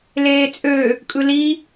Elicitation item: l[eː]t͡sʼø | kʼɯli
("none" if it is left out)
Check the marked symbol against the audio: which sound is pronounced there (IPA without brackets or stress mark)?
eː